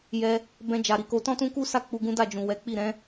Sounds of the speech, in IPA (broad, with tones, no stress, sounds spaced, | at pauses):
j ɛ˧ | b ɛ̃˧ d͡ʒ a˨ ɾ i˨ k o˧ t ɔ̃˦ t ũ˦ k u˦ s a˦˨ k͡p u˧ ɡ ũ˦ d a˦˨ d͡ʒ ũ˨ w ɛ˨˦ k͡p i˦˨ ɾ ɛ̃˨˦